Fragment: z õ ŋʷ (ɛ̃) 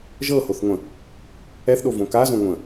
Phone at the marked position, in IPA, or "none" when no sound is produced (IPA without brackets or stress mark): ə̃